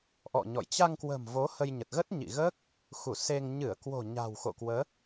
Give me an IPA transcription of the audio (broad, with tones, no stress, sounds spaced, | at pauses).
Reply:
ʔ ɔ̰˧˨ ɲ ɔ̰˧˨ j t͡ɕ a˧ ŋ k w ə̤˨˩ m v o˨˦ h ə˧ j ɲ ə˨˩ t̚ ɣ ə˦˥ t̚ ɲ ḭ˧˨ ɣ əː˦˥ k̚ | x u˧˩ s e˧ ŋ ɲ ɨ˧˩ ə̯ k w o̤˨˩ ɲ a̤˨˩ w x o̰˧˨ k w əː˨˦